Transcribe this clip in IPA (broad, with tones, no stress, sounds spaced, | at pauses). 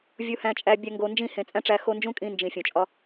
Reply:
vʲ u˧ h æ̃˧ t͡ʃʼ æ˧ bʲ æ˧ ŋ ɡ o˧ n d͡ʒ ĩ˦˨ h ẽ˨ t͡sʼ æ̃˦ ʈ͡ʂ æ˧ x o˧ n d͡ʒ ũ˦ kʼ ĩ˧ n d͡ʒ ĩ˨ fʲ õ˨ t͡ʃʼ ɒ˦